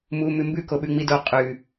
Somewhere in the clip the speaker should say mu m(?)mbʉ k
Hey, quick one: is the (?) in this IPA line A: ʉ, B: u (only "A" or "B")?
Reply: A